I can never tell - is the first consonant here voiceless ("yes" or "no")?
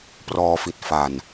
yes